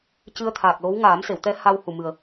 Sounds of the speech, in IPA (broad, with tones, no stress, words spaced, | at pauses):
cɨ˧ə̯t̪ʰaː˨˩k̚lo˧˥w ŋaː˨˩˦mse˨˩˨wt̪ɛ˧˥ ha˧whu˨˩ mɨ˨˩ə̯